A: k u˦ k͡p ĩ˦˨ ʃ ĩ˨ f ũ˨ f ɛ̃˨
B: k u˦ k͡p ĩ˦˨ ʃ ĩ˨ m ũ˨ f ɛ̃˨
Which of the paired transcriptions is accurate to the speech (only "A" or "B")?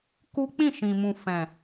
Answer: B